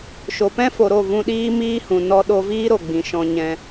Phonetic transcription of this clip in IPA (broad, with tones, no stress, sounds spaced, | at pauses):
ʃ o˨ p ɛ̃˦ f o˨ ɾ o˦˨ v ũ˧ ɗ iː˦ m iː˦ h ũ˨ n ɔ˧ ɗ o˧ v iː˦ ɾ o˨ ɡ͡b ĩ˨ ʃ ɔ̃˧ ɲ ɛ̃˧